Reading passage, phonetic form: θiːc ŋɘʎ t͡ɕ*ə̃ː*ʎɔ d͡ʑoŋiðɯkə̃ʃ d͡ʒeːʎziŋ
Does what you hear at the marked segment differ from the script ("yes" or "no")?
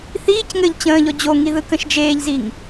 no